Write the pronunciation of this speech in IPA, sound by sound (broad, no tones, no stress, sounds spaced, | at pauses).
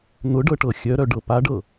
n̪ ʊ ɖ ɤ ʈ ɤ xʲ œ ɾ œ ɖ ɤ p a ɖ ɤ